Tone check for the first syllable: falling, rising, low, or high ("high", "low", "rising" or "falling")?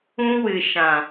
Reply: high